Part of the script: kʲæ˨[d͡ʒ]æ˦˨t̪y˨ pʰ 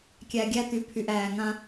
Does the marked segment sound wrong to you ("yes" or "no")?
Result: yes